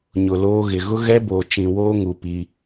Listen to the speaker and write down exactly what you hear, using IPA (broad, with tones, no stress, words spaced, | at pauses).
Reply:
ɲʊ˨loː˦ɣɪ˨ ɣʊ˦ɣɛ˦boː˨t͡ʃĩ˨ woː˦ŋu˨ pi˦